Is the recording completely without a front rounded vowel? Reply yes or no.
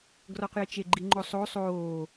yes